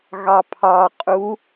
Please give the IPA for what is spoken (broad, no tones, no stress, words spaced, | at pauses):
ɣɑpʰɑqʼu